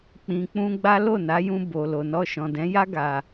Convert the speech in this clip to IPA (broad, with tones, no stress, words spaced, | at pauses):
k͡pĩ˨k͡pũ˧ɡ͡ba˦ lo˦˨na˨˦jũ˧ bo˨ lo˨nɔ˧ ʃɔ̃˨dɛ̃˨˦ja˦ ɡa˧